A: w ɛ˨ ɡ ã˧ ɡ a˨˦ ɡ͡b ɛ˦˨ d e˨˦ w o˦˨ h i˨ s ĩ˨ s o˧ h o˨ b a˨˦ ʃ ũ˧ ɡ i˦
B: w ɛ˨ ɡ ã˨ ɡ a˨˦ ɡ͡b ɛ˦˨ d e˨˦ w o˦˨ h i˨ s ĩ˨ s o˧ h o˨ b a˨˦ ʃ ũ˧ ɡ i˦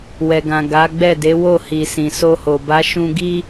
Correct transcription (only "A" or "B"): B